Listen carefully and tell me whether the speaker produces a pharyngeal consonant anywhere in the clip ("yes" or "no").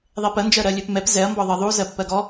no